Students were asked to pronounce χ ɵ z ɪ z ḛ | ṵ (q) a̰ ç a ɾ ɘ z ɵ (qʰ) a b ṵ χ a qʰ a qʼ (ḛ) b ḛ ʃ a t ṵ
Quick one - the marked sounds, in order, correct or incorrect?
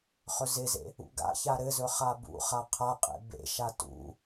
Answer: incorrect, incorrect, correct

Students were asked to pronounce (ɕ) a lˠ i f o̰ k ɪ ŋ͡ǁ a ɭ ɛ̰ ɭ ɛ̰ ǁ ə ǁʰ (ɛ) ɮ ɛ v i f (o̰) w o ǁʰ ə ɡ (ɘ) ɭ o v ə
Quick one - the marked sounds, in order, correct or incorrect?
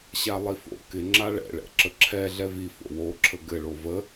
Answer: correct, correct, correct, correct

